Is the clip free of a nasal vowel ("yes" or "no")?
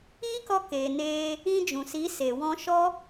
no